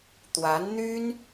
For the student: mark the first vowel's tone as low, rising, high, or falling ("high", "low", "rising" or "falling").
rising